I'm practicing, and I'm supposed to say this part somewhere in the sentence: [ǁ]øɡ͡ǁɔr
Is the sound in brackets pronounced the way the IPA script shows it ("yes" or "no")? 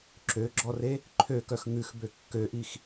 yes